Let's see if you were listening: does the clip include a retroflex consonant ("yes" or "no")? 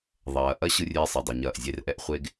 no